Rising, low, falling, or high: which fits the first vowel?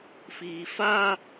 low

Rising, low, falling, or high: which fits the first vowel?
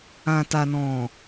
low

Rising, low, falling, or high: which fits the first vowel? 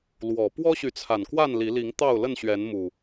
low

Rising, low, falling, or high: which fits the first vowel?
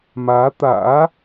rising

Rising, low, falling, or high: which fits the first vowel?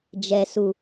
low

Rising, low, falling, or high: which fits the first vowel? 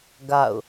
falling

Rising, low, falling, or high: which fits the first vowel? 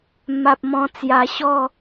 low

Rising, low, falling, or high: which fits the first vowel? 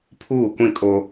falling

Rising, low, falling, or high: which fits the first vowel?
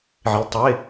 rising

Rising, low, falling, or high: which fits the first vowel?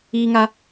high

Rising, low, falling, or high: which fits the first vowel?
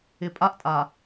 low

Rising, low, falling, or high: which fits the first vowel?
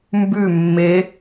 falling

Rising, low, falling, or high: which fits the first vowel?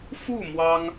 falling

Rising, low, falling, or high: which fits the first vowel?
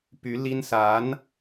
rising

